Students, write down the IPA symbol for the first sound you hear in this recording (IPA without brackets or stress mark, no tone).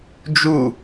d͡ʒ